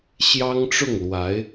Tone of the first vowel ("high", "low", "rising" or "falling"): high